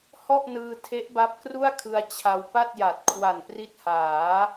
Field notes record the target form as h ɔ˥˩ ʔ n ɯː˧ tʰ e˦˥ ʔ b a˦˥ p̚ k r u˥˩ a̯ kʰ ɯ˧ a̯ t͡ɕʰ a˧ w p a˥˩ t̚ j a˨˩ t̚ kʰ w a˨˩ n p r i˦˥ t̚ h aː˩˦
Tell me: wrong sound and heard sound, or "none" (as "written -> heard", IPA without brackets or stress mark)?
none